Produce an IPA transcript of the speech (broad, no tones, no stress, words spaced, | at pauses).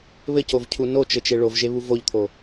βɘcovcʰu not͡ʃɘt͡ʃe ɭovʒeβu voʎt̪ʰo